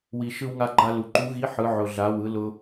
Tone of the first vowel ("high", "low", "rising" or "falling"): low